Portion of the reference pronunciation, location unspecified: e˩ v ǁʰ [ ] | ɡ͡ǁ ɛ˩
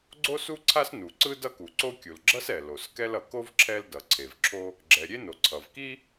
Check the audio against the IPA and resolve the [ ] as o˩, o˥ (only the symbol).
o˥